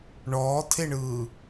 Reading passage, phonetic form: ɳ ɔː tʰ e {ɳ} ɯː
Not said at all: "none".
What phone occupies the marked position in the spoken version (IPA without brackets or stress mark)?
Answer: ɳ